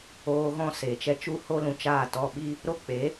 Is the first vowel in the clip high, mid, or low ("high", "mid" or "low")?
mid